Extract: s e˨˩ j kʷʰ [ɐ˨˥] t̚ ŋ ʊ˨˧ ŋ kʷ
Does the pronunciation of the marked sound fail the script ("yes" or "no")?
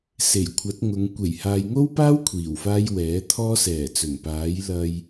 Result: no